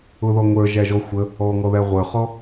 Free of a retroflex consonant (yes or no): yes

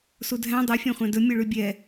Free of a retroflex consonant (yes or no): no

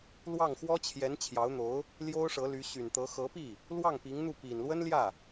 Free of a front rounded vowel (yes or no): no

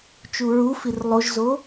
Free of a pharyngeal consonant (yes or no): yes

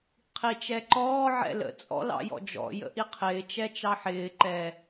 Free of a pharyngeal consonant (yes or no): no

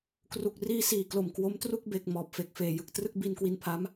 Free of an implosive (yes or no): yes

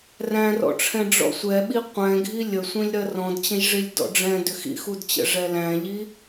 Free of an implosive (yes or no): no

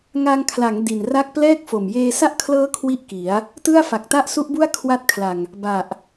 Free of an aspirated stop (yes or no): no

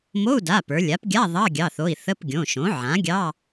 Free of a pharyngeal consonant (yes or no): no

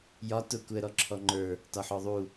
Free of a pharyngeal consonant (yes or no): no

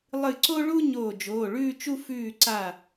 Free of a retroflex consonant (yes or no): no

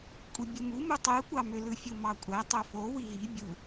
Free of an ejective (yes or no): no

